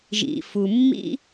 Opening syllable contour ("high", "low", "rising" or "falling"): low